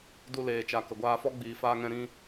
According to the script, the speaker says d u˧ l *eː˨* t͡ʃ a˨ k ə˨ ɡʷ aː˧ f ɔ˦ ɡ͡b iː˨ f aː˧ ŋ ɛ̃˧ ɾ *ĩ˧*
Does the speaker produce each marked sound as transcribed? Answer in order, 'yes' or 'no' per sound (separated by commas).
yes, yes